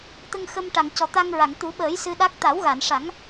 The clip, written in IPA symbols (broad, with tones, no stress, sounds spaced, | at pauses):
t̪ ə˧ ŋ x ə˧ m ʈ a˨˩˨ ŋ c ɔ˨˩ t̪ a˧ ŋ ɹ a˨˩˨ ŋ t̪ u˨˩˦ ɓ əː˨˩˦ j s ɨ˧ ɗ a˦˥ k̚ t̪ a˨˩˦ w ɣ a˨˩˨ n ʂ a˨˩˦ ŋ